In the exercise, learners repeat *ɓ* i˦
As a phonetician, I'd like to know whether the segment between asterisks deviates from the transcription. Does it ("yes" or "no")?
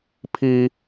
yes